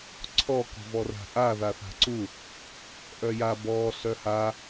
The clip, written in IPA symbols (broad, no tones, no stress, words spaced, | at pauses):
ǀʰɔ kɔ̤vɔra̤ʔa ðaθa̤ǀu | ʔœja bɔ ɬœha